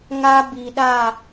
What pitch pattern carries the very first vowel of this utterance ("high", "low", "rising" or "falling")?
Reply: high